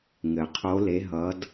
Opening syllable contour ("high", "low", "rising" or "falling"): low